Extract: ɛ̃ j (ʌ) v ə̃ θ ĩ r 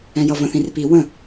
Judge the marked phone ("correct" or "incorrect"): correct